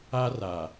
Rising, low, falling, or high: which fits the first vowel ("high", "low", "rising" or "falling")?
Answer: high